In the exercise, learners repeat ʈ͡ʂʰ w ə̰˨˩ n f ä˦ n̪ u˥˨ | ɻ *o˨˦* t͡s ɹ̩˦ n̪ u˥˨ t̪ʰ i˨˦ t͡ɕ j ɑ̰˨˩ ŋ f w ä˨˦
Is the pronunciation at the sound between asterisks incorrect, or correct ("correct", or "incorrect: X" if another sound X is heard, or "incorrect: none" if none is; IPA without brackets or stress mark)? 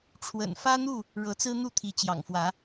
incorrect: ɤ˨˦